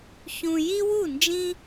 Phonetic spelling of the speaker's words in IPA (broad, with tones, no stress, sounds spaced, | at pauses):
ç ũ˨ j i˦ w u˥˩ n d͡ʒ ĩ˦